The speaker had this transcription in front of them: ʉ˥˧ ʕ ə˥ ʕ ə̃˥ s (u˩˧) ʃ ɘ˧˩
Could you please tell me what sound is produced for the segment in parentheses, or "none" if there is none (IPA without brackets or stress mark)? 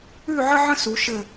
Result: u˩˧